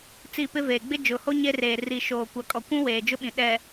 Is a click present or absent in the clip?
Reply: absent